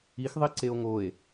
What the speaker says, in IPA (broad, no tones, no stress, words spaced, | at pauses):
ixðˤiǀeo̯ ŋoe̯